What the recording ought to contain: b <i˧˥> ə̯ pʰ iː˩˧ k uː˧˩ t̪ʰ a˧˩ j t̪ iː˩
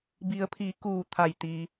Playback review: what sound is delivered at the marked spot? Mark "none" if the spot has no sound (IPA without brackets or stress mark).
i˩˧